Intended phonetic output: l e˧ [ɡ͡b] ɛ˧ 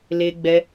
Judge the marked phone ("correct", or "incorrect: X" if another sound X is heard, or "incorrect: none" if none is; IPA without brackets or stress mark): correct